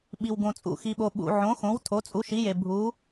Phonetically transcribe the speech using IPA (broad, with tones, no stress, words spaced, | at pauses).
ɓi˨wɡõ˨ t͡sʼṵ˨xi˨ɓo˨ ɓṵ˨ ʕõ˨˥xõ˨˥w tʰo˨˥t͡sʼu˨˥ ʃi˨˥je˨ bʱu˨˥